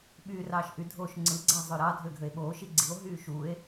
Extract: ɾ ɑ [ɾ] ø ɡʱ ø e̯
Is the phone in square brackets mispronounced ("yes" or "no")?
yes